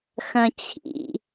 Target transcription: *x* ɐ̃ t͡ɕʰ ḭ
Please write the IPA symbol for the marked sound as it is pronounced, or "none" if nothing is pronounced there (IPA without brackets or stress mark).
x